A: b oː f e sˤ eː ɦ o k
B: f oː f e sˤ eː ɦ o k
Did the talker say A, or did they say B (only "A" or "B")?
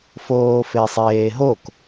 B